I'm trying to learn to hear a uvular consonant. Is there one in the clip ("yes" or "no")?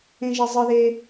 no